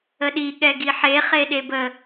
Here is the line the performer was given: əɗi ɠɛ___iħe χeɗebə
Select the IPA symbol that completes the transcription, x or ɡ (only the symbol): ɡ